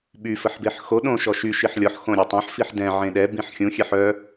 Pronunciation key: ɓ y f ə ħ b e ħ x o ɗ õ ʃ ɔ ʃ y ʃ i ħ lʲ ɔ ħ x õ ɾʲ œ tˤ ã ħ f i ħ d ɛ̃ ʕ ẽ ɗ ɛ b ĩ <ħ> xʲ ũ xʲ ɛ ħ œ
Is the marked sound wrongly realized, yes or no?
no